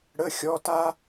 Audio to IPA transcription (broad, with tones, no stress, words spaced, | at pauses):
ɽə˩˧˩xʲɔ˩˧˩ta˦